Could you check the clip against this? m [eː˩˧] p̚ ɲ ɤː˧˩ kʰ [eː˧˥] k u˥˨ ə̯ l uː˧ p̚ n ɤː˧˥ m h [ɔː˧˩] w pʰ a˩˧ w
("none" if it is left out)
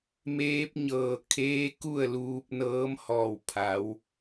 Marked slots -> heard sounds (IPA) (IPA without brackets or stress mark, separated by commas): eː˧˥, eː˧˥, ɔː˧˩